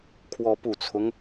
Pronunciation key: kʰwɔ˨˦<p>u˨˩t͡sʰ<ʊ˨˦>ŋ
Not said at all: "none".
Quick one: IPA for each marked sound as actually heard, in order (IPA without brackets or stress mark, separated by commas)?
p, ʊ˦